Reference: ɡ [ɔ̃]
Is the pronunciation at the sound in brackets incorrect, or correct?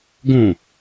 incorrect